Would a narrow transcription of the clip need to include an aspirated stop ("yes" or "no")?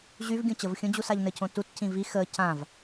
yes